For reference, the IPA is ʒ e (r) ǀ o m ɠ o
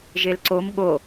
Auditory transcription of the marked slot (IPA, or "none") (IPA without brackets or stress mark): l